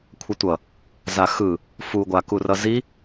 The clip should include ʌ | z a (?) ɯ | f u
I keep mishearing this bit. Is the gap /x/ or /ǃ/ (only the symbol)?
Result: x